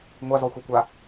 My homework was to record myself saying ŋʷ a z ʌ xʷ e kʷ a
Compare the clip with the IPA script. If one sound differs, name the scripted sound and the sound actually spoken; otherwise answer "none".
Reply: ʌ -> ɔ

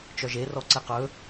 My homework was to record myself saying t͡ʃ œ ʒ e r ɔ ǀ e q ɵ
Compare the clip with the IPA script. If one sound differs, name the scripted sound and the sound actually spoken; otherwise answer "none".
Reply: none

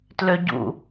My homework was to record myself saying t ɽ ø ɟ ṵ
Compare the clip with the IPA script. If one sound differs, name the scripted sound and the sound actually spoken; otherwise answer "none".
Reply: ɽ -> l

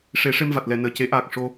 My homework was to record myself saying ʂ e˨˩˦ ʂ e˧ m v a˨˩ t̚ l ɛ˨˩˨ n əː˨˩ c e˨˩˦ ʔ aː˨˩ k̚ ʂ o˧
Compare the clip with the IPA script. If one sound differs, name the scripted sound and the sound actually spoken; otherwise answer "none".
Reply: none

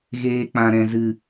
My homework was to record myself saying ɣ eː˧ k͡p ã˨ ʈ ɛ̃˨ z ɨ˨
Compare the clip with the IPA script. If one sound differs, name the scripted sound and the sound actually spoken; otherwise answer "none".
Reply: ʈ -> ɾ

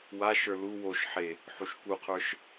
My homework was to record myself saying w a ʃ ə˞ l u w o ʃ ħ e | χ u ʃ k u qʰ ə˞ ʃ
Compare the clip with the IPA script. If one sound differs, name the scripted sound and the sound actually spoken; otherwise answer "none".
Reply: χ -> ħ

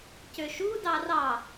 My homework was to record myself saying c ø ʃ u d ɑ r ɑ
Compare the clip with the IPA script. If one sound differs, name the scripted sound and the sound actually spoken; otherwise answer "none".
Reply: none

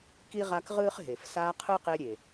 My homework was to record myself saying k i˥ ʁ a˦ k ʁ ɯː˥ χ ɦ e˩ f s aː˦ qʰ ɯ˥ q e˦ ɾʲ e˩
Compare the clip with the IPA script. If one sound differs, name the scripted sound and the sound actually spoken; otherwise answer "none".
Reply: none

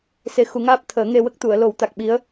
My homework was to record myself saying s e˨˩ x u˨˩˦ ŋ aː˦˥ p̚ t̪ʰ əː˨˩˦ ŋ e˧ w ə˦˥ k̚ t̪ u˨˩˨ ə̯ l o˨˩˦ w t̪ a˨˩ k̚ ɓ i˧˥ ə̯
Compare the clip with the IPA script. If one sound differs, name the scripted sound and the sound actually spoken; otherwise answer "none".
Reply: none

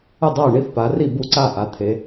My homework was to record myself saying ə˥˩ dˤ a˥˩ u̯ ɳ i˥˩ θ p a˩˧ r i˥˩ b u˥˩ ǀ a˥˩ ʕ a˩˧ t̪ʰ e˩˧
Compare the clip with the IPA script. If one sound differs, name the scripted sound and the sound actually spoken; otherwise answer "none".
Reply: ʕ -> ʔ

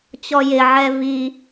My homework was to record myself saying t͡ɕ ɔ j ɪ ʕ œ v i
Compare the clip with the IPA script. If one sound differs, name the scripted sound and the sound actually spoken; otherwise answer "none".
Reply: œ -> ɛ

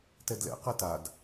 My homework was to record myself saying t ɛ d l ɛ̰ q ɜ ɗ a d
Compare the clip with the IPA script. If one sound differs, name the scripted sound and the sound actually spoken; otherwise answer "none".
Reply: ɗ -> t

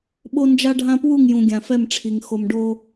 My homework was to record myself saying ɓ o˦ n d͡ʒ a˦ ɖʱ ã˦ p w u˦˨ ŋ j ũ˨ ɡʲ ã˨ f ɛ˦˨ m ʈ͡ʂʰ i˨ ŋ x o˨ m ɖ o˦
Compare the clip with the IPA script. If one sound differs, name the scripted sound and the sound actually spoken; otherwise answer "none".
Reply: none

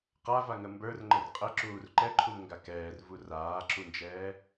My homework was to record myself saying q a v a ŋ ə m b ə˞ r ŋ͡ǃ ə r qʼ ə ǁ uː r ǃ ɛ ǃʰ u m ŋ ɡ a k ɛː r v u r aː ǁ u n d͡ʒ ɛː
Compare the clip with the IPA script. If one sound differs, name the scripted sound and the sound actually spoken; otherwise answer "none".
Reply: none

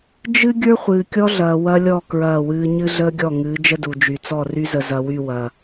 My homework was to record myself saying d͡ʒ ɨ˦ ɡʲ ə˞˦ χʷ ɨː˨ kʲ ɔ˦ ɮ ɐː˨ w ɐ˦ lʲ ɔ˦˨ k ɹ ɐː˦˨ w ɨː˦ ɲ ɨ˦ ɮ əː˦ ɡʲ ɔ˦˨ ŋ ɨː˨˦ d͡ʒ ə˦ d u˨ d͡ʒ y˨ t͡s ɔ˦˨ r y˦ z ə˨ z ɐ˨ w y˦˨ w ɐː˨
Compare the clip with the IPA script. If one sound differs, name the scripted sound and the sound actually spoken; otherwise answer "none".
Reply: none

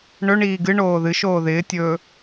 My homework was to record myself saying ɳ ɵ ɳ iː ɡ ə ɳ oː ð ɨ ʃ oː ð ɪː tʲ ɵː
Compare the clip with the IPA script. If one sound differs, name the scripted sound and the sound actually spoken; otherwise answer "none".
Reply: ə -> ɨ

